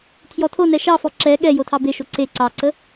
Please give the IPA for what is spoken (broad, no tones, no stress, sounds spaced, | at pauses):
tʰ j ɔ tʰ o n ɛ ʃ ɑ f ɔ ǁ ɛ ɠ ɛ j o tʰ ɑ b e ʃ o ǀ e ǀ ɑ ǀ ə